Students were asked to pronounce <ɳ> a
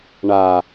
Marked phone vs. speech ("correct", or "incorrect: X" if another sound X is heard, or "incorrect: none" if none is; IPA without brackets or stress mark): correct